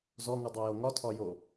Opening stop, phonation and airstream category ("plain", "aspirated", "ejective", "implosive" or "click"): plain